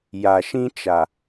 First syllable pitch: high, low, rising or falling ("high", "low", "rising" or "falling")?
low